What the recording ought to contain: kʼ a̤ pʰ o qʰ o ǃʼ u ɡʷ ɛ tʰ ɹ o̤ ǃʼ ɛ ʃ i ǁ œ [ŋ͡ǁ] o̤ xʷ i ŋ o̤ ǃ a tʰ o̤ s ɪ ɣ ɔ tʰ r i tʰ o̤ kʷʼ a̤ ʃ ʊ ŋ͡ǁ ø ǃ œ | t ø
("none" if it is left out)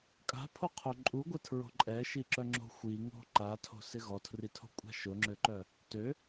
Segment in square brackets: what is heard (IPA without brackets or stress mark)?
ŋ͡ǁ